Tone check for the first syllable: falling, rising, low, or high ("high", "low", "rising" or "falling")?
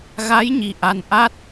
rising